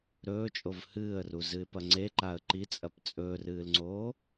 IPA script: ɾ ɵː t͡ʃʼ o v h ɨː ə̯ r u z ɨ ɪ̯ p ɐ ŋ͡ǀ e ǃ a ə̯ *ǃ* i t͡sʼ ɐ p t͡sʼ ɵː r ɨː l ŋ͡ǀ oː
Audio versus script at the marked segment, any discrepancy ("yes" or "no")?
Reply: no